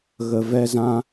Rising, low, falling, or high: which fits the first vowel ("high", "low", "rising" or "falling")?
low